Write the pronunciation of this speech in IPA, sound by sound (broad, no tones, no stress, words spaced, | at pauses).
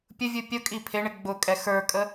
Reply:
pʲʊvʲu pʲʊ kʼipʰɪɳɪ ɡ͡bʊkʼɛ xə˞kʼə